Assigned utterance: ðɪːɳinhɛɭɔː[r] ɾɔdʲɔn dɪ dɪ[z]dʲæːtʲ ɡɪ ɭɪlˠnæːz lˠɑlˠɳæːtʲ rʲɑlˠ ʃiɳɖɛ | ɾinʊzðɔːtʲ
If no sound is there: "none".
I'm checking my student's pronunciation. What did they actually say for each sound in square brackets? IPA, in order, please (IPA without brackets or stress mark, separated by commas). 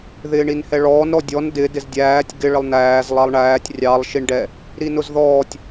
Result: n, z